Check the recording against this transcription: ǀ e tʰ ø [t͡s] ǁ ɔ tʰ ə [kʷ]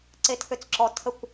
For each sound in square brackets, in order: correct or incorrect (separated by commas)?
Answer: correct, correct